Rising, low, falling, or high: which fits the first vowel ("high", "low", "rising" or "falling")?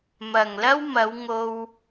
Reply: low